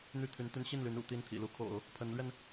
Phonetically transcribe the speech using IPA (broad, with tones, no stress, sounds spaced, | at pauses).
n̪ y˥˩ t̪ʰ y˧˥ n t̪ y˧˥ n ɕ i˥˩ n l y˧˥ n ṵ˨˩ t̪ i˥˩ n t̪ʰ ḭ˨˩ l u˥ kʰ o̰˨˩˦ ʊ̯ | pʰ ə˧˥ n l ɥ ɛ˧ n